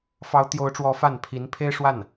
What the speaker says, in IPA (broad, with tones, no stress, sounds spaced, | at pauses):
f ɑ˧˥ ʊ̯ t̪ j o˧˥ ʊ̯ ʈ͡ʂ w ɔ˧˥ f a˥˩ n pʰ i˧˥ n pʰ e˥ ɪ̯ ʂ w a˥˩ n